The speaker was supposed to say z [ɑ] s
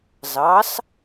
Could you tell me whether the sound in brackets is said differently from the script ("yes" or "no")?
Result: no